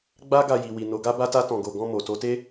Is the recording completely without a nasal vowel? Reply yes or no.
no